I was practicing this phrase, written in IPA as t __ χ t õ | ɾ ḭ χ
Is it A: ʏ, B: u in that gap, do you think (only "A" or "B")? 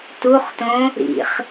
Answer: B